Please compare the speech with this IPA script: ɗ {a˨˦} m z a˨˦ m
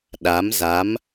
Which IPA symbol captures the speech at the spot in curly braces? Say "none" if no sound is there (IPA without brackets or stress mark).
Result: a˨˦